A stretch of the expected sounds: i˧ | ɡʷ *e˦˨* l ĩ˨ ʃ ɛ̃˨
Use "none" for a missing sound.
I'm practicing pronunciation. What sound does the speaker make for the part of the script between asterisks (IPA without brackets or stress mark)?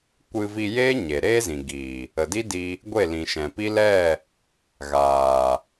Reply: e˦˨